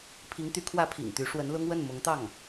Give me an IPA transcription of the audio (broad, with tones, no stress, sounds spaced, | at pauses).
pʰ i˧˥ ŋ t̪ y˧˥ kʰ w ä˥ pʰ ḭ˨˩ ŋ t̪ y˧˥ ʂ w ə˧˥ n l ʊ˥ ŋ w ə˥˩ n m ʊ˧˥ ŋ t̪ ɑ˥˩ ŋ